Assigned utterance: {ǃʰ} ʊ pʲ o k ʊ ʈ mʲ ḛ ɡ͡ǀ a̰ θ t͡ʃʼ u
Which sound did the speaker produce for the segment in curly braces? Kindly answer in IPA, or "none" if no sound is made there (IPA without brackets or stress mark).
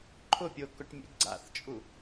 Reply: ǃʰ